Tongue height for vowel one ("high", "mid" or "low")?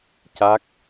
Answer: low